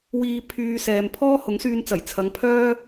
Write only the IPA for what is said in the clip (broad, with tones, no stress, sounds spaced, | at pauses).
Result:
w iː˧ pʰ yː˧ s ɛː˨ m pʰ ɔː˥ h ʊ˨˥ ŋ s yː˧ n t͡s ɐ˨˩ j t͡sʰ ɐ˨˧ ŋ pʰ œː˥